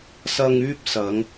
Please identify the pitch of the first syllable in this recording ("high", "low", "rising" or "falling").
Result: low